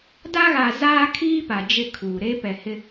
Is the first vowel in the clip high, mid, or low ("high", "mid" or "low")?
low